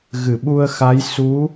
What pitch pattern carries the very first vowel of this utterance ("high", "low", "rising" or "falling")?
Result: low